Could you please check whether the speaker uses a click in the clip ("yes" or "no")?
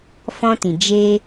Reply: no